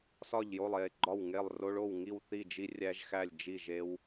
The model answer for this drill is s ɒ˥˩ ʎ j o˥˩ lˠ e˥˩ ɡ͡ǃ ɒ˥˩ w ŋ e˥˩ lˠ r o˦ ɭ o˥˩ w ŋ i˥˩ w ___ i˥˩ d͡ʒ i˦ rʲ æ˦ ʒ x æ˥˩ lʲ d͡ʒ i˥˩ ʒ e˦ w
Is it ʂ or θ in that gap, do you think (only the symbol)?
θ